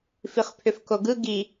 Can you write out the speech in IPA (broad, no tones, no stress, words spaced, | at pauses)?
fiχpʰʏfkoɡɯ ɡi